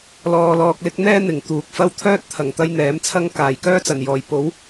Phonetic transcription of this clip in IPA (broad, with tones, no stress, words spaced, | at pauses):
lɔː˧lɔː˧k̚lɪ˥k̚ n̪ɛː˥n̪ɪ˨˩ŋ t̪uː˨k̚fɐ˥w t̪ʰœː˥t̚t̪ʰɐ˨˩ŋ t̪ɐ˥jn̪ɛː˨˥mt͡sʰɐ˥ŋ kaː˨˩jkœː˥t͡sɐ˨˩njɔː˨˩j po˨˥w